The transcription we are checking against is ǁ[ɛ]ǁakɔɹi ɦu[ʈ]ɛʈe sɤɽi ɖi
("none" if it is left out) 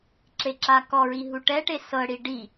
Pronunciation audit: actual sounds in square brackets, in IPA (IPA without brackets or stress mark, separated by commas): e, ʈ